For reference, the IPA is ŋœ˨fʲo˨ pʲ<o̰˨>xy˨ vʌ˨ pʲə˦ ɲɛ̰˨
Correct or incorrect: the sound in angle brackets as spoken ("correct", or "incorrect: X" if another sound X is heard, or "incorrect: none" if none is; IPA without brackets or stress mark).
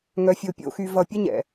correct